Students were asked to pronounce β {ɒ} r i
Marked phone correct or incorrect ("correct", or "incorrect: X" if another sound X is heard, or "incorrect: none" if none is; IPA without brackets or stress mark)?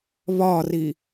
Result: correct